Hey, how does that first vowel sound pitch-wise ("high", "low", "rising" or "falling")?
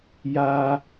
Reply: high